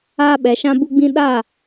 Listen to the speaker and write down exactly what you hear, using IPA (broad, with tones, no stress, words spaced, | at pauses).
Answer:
aː˦ɓɛ˨˦ʃã˦ bu˦ɡ͡bĩ˦ ɗaː˦˨